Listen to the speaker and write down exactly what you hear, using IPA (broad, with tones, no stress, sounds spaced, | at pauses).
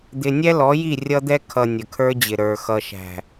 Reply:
d̪ ɪ˨ nʲ ɛ˦ l ɔ˨˦ j i˦˨ rʲ ʌ˦ d̪ ɛ˦ kʰ ʌ˨ nʲ ə˨ kʰ ə˞˦ d͡ʑ ɪ˨ ɾ ə˞˨ x ʌ˨ ʃ æ̤˨